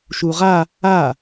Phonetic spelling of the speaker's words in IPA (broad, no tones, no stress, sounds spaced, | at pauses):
ʃ u ʁ a | a